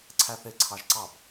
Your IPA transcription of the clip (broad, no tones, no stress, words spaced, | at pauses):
ǀʰæθe ǀʰɑʒǀɑb